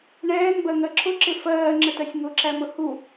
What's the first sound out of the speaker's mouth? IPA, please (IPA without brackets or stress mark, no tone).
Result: ɳ